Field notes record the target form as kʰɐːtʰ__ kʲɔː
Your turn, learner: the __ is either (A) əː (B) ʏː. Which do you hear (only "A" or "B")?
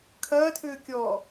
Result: B